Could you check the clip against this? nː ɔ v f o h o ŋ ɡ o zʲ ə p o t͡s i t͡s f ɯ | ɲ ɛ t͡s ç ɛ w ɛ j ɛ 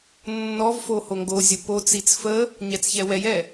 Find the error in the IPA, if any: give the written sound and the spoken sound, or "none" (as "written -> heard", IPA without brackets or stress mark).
ɯ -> ə